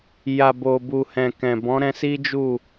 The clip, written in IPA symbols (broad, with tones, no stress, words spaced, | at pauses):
ja˨bo˨bu˨ hɛ̃˨kɛ̃˨ bɔ̃˨˦ɾɛ̃˧si˦ d͡ʒu˦˨